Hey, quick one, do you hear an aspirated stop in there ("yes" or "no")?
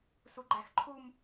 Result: yes